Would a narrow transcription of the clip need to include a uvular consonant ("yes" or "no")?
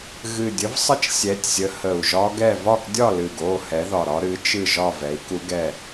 no